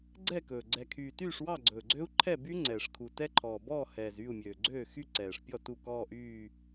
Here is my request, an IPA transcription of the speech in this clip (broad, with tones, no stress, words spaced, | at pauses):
ɡ͡ǀɛ˥˩kɵː˨˩ ɡ͡ǀɛ˨˩kʰyː˨˩ tyː˥˩ʂwɑ˥˩ɡ͡ǀɵː˨˩ɡ͡ǀø˦˥u̯ ǃʰɛ˥˩by˦˥ ŋ͡ǀɛː˨˩ʂkʰu˨˩ tɛ˦˥ǃʰɔː˨˩bɔː˥˩hɛː˨˩z yː˥˩u̯mʲøː˨˩ɡ͡ǀøː˥˩ xy˥˧ǀɛː˨˩ʂpʲɔ˥˩ tu˥˩kɔː˥˧ʔyː˥˧